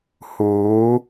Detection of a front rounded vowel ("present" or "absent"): absent